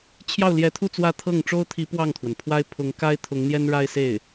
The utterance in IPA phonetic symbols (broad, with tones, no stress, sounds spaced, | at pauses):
t͡ɕʰ j ɑ˥˩ ʊ̯ l j ɛ˧˥ t̪ʰ u˥˧ t͡s w ä˥˧ t̪ʰ ɤ˥˩ ŋ ʈ͡ʂ o˥ ʊ̯ t̪ʰ i˧˥ p w ɑ˥˩ ŋ t̪ʰ w ə˩ n pʰ w a˥ ɪ̯ pʰ ʊ˧˥ ŋ k a˥ ɪ̯ t̪ʰ ʊ˧˥ ŋ n̪ j ɛ˥ n ɻ a˥ ɪ̯ s e˥˩ ɪ̯